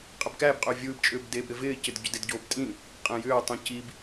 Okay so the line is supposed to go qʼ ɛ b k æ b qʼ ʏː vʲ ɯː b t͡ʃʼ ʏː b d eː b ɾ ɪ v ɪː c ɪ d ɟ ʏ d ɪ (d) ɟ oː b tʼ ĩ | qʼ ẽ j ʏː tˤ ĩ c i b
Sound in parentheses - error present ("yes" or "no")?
no